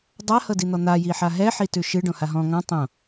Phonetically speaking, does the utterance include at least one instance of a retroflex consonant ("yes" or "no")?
yes